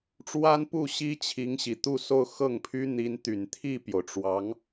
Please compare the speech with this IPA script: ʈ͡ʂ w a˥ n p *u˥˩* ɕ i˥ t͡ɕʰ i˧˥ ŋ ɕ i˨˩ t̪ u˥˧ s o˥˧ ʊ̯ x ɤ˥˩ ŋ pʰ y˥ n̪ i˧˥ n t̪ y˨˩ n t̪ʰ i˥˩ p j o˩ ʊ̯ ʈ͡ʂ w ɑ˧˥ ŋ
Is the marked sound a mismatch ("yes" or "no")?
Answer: no